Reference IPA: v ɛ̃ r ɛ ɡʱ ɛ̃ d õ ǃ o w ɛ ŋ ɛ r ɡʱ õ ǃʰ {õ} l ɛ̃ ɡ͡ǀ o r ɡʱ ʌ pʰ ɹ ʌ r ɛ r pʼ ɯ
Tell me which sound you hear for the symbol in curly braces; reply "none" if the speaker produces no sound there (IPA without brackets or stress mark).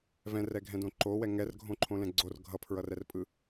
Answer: õ